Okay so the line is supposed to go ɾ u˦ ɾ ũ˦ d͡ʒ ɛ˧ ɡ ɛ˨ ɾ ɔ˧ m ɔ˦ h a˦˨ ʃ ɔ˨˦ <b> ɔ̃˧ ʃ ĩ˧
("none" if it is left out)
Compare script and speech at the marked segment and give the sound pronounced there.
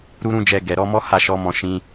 m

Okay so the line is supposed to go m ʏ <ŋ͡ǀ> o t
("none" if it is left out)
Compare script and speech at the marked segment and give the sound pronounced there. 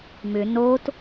n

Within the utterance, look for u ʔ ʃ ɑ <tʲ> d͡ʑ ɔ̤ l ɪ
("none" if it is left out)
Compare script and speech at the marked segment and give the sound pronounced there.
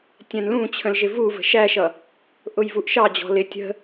none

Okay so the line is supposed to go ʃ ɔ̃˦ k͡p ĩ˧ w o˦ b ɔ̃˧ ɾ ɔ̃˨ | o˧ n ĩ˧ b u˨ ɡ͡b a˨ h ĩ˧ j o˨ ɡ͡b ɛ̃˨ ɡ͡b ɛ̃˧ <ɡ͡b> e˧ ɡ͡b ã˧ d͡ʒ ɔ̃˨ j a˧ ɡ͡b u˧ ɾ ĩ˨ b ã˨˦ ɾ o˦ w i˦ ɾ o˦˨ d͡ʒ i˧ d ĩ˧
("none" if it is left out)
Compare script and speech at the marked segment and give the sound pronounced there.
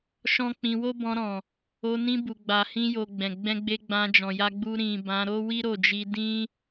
ɡ͡b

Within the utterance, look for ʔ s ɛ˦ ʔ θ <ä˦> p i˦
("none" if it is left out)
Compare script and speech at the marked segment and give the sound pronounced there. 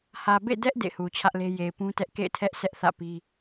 ä̰˦˨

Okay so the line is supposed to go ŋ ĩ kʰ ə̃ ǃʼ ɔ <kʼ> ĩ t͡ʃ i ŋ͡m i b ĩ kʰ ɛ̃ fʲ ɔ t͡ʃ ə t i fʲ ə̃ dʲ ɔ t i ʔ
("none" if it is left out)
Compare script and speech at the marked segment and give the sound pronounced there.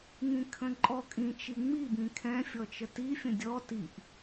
kʼ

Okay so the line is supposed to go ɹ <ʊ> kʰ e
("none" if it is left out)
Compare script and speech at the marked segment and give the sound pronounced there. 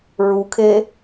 u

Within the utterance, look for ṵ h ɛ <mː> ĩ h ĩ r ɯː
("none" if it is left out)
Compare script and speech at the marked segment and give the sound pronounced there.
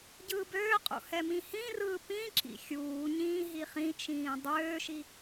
m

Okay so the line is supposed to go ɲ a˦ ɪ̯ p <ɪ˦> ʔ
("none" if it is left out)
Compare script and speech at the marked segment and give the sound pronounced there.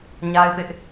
ɪ˦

